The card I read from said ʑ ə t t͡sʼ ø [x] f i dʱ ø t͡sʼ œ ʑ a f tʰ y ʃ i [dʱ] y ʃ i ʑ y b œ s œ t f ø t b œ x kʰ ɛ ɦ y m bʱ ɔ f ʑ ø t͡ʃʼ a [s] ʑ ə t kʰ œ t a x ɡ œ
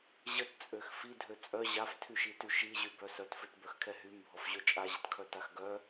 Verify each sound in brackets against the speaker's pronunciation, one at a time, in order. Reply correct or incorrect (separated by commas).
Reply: correct, incorrect, incorrect